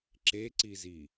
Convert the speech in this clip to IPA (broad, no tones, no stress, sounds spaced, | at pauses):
ǁ e ǀ i z i